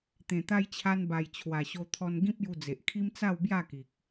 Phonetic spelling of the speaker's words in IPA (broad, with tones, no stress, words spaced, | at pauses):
t̪ẽ˨˩t̪a˧jt͡ɕʰa˧n ba˨˩j t͡ɕʰwa˨˩ɕo˧t̪ʰɔ˧n ɡĩ˦p̚ju˧d͡ze˨ʔkʰi˦m t͡sa˥˧wbja˥˧ki˨k̚